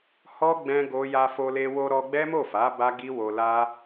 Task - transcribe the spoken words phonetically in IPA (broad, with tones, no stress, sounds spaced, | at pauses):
h ɔ˦ ɡ͡b ɛ̃˦ ɡ o˦ j a˧ f o˧ l e˧ w o˧ ɾ ɔ˧ ɡ͡b ɛ˦ m o˦˨ f a˨˦ b a˦ ɡ i˦ w o˧ l a˦